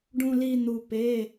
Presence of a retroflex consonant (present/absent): present